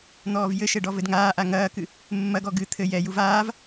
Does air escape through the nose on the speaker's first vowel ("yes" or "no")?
no